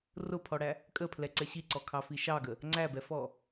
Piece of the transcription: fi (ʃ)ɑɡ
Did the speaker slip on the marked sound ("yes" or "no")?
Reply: no